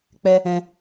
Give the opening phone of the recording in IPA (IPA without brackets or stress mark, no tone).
k͡p